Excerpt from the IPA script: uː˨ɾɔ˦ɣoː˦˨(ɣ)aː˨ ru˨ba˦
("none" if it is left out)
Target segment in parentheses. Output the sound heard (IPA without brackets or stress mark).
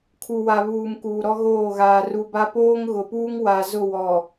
ɣ